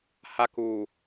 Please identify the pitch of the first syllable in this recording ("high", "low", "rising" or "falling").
high